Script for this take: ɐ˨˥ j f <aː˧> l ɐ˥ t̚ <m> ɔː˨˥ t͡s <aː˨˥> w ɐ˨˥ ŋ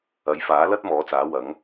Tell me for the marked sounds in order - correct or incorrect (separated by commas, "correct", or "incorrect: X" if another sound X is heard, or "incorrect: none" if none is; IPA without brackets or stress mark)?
incorrect: aː˨˥, correct, correct